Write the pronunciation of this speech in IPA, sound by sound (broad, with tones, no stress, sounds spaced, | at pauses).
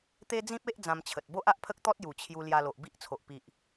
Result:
t̪ e˦ d͡z ĩ˦ p̚ e˦ ʔ d͡z ã˧ m t͡ɕʰ ə˨ t̚ b o˦ ʔ a˦ ʔ pʰ ə˦ k̚ t̪ ɔ˦ t̚ j u˨˩ t͡ɕʰ j u˧ l j a˧ l o˨ ʔ b i˦ ʔ t͡sʰ o˨ ʔ p i˨ ʔ